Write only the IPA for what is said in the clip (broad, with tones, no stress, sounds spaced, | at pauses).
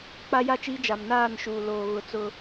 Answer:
k͡p a˦ j a˦˨ t͡ʃ iː˦ d͡ʒ a˨ m n aː˦˨ n ʃ uː˨ l oː˨ ɣ ʊ˨ t͡s ʊ˦